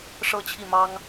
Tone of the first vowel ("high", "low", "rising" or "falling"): falling